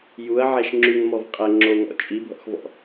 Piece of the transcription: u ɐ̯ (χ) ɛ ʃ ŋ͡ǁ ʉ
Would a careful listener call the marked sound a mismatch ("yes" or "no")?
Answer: yes